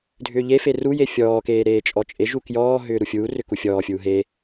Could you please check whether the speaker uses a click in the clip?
no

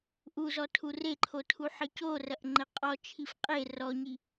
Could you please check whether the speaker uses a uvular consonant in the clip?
yes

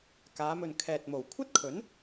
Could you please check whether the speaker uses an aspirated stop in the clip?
yes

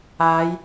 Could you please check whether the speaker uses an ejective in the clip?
no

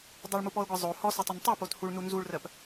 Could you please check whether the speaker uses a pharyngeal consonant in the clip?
no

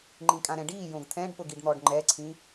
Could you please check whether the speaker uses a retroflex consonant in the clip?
yes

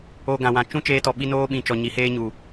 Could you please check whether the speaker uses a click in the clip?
no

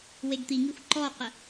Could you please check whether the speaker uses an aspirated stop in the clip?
no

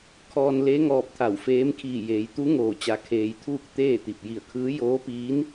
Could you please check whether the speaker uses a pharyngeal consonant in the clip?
no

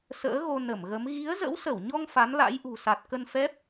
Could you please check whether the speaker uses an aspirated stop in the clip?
no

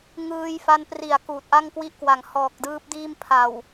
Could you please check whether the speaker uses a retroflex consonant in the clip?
no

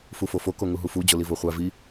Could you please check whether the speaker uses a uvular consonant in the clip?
yes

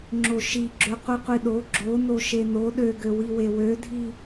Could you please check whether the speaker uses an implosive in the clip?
yes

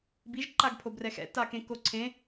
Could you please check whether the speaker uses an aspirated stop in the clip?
yes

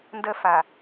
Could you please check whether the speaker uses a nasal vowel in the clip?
no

